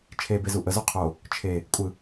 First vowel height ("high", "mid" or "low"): mid